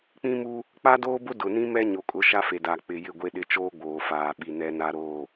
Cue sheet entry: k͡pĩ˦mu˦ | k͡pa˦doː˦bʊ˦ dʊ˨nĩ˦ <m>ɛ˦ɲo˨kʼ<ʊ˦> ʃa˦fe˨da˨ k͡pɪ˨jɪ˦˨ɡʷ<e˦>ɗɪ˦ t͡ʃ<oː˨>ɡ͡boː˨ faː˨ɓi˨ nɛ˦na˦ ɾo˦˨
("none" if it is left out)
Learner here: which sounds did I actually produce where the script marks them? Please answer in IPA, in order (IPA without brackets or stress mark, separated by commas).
m, ʊ˨˦, e˦, oː˦